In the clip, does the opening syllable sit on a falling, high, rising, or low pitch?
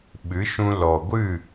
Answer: rising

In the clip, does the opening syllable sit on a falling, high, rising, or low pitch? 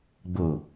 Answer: low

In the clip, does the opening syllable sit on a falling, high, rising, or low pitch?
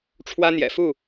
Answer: high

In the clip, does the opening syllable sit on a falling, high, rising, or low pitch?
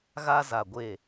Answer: high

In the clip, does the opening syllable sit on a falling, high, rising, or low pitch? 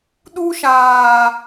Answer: high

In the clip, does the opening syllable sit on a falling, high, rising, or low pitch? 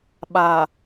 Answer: low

